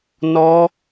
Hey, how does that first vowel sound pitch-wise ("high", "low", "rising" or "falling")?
high